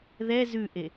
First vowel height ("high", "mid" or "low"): mid